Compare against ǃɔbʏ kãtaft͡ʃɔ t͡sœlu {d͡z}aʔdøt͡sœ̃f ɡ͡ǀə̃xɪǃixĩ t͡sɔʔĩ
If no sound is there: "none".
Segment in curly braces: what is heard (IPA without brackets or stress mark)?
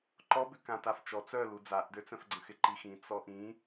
d͡z